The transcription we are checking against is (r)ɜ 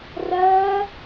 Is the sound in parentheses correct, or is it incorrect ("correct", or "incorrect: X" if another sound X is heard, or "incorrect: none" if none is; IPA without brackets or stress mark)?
correct